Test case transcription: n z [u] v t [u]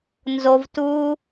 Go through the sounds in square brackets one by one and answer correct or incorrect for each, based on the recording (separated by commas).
incorrect, correct